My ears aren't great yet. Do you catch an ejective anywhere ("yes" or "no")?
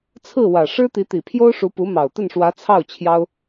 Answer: no